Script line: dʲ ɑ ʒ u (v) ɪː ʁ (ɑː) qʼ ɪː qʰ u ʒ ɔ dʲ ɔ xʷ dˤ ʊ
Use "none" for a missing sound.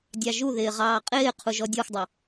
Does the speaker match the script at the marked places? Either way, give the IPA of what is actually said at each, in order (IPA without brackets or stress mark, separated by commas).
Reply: ð, ɑː